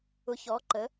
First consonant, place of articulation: palatal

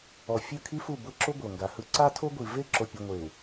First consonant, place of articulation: labial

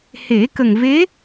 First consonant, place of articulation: glottal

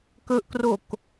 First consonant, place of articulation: velar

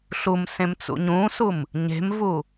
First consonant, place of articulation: alveolar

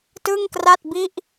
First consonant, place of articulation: alveolar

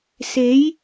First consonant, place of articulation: alveolar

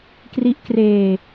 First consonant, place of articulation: velar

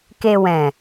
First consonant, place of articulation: velar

